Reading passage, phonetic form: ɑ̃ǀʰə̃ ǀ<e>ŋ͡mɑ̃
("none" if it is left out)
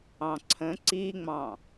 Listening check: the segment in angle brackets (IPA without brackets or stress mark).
i